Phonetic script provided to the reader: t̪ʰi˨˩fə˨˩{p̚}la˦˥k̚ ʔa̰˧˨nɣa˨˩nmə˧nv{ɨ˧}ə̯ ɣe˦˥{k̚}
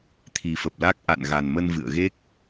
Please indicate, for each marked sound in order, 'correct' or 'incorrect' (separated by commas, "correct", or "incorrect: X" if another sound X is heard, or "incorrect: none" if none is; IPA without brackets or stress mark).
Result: correct, incorrect: ɨ̰˧˨, correct